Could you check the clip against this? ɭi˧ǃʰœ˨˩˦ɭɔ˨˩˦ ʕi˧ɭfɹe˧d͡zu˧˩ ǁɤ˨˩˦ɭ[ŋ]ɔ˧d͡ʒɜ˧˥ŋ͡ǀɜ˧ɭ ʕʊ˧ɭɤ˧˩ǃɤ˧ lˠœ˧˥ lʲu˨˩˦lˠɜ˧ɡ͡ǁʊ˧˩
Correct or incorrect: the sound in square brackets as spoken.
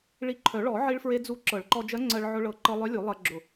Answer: incorrect: ǃ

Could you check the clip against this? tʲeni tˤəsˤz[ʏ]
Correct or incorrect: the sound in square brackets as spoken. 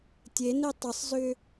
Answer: correct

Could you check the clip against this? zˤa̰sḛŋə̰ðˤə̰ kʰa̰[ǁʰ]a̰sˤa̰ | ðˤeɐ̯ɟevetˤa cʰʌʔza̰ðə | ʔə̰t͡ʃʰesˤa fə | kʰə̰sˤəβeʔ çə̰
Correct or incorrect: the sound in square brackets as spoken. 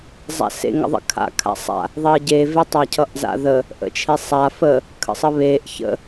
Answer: incorrect: kʰ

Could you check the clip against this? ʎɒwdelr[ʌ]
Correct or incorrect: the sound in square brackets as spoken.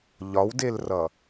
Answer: correct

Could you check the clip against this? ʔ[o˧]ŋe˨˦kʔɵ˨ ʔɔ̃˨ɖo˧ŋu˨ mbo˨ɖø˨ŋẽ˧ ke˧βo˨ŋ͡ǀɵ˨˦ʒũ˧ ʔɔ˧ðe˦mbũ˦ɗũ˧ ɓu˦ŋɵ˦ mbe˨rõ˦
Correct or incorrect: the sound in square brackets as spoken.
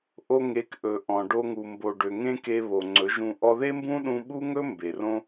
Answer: correct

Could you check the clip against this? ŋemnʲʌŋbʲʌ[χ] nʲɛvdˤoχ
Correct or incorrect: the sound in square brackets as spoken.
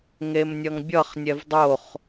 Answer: correct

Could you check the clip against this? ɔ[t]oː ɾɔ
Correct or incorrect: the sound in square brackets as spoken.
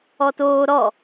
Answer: correct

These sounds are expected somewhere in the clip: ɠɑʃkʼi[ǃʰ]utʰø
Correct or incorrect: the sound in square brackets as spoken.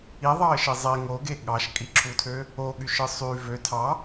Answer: incorrect: ǁʰ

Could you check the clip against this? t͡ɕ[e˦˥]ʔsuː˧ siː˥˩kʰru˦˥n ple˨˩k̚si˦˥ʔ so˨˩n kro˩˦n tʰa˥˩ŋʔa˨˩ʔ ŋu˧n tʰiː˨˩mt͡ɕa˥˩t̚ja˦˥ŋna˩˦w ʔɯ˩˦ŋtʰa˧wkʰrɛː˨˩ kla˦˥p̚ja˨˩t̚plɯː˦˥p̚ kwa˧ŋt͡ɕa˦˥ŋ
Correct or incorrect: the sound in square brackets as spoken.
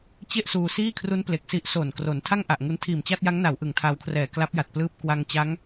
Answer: incorrect: e˥˩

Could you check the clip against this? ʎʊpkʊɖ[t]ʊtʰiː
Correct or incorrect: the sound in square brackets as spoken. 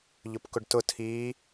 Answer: correct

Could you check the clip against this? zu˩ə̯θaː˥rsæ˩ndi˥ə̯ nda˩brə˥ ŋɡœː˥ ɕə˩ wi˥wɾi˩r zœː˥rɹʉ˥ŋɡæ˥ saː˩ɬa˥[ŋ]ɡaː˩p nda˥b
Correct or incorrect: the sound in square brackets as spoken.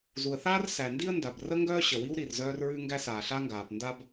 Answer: correct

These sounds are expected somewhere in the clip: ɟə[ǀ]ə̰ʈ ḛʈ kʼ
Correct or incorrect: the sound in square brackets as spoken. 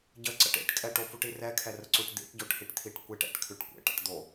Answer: correct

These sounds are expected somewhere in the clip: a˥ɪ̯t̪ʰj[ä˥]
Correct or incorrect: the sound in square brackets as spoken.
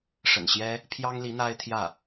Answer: incorrect: ä˥˩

